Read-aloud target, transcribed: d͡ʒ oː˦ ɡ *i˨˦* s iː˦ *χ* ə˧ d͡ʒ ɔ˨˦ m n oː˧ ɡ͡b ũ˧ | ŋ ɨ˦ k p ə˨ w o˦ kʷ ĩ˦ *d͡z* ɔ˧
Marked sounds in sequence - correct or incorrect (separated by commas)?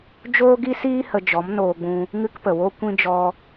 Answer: incorrect, incorrect, incorrect